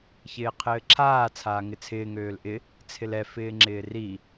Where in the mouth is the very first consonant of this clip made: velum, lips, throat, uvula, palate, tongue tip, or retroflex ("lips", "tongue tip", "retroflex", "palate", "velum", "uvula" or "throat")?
palate